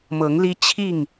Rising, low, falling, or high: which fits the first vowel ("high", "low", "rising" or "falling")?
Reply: rising